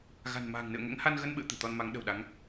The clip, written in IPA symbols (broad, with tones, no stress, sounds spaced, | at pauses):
ɣ a̤˨˩ n m a̤ː˨˩ ŋ n ɨ̰˧˨ ə̯ ŋ ɛ̰˧˥ ŋ h a˧ n ɣ ə˧ n ɓ ɨ̰˧˨ ə̯ t̪ ɨ̤˨˩ t̪ ɔ˧ n m a˨˦ ŋ ɗ ə̤˨˩ w ɗ a˨˦ ŋ